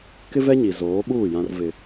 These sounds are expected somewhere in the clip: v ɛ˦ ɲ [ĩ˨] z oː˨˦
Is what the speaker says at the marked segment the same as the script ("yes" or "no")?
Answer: no